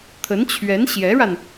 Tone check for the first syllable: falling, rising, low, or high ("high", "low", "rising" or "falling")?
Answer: rising